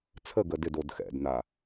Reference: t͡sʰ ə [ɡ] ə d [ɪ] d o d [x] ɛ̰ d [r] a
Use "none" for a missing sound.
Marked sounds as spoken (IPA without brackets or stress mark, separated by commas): ɡ, ɪ, x, n